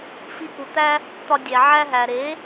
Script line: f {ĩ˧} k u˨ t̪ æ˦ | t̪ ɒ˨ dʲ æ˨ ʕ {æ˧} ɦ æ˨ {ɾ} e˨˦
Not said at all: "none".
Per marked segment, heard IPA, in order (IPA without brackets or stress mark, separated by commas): i˧, æ˧, ɾ